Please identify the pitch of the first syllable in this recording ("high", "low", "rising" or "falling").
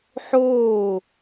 falling